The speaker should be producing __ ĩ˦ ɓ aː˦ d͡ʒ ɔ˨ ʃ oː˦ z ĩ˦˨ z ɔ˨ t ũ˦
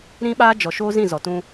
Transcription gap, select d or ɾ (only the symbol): ɾ